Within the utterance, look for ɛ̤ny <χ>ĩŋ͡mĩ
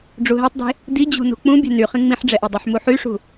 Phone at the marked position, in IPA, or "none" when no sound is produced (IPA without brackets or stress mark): χ